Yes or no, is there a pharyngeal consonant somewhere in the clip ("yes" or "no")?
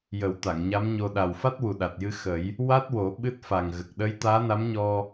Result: no